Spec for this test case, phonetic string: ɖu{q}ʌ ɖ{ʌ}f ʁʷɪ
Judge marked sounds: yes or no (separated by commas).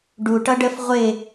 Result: no, no